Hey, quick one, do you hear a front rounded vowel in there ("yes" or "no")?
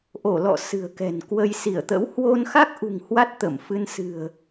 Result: no